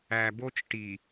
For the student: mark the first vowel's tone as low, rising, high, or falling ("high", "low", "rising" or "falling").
low